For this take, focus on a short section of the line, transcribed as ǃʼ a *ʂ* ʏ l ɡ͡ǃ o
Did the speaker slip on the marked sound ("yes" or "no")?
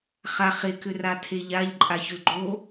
yes